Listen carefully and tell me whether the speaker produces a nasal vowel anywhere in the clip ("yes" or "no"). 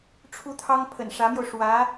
no